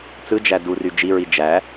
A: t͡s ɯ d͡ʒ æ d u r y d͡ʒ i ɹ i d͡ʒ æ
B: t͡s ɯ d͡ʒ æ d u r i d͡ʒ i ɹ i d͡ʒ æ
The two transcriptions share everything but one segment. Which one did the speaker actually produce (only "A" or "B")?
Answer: A